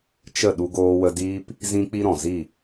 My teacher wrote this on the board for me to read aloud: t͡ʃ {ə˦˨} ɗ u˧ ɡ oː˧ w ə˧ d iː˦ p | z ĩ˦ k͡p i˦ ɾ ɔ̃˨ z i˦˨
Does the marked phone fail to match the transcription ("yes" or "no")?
no